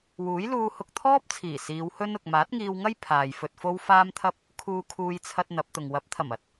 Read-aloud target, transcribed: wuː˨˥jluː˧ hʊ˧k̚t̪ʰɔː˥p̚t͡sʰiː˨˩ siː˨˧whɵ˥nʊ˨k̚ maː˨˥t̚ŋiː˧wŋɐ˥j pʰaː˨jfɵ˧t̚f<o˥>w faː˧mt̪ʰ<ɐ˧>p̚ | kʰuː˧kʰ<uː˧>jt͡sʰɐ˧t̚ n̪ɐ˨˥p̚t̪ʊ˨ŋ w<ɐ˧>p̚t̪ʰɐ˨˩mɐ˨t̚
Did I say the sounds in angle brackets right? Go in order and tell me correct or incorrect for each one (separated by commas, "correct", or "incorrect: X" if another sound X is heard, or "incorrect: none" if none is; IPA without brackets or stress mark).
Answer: correct, correct, correct, incorrect: ɐ˨˥